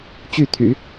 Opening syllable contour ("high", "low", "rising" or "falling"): falling